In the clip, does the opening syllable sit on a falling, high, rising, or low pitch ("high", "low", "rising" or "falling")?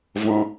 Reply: high